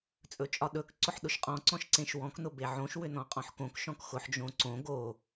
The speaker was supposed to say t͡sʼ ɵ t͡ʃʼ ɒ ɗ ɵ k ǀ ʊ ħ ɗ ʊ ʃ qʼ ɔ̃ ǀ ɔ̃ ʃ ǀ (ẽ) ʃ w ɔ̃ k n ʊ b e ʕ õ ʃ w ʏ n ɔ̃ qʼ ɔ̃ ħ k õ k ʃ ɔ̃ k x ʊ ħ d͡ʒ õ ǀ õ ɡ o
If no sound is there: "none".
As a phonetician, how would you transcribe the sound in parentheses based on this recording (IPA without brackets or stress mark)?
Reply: ẽ